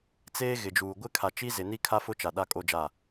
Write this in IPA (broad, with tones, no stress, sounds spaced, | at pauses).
t͡s eː˦ ɣ ɪ˨ d͡ʒ uː˨ ɡʷ ɪ˦ kʰ a˨ t͡ʃ i˦ z ɪ˨ n i˦ kʰ a˦ f ʊ˦ t͡ʃ a˨ ɗ a˦ kʼ o˦ d͡ʒ a˦˨